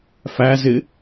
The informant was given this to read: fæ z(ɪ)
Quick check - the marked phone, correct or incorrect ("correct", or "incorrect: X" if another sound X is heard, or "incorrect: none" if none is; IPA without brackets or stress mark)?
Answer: correct